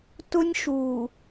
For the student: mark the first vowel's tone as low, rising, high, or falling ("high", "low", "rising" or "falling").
high